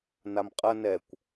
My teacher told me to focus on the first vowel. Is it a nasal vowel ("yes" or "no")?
no